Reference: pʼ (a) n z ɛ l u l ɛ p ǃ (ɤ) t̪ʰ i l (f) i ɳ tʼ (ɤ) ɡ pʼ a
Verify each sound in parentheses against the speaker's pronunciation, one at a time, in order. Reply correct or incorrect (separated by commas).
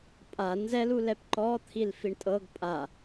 correct, incorrect, correct, correct